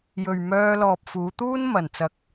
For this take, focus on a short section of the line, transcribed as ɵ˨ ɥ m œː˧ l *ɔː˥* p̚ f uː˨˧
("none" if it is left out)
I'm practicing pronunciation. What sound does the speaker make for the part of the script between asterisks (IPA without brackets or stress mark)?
ɔː˨